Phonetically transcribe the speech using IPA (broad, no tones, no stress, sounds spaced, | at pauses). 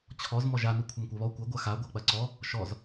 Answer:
t͡ɕʰ ɔ z m ɔ ʒ a n i kʷʰ ɐ m kʷ a β ɔ kʷ ɐ ɡʷ a x a ɡʷ a k͡p ɐ ǀ ɔ | ʃ ɔ z